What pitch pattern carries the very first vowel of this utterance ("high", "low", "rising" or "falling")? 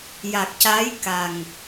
low